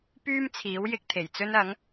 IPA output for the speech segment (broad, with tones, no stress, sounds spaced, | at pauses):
p yː˥ m t͡sʰ iː˨˥ w j ɪ˧ k̚ t̪ʰ e˨˩ j t͡s ɵ˥ n ɐ˨˥ ŋ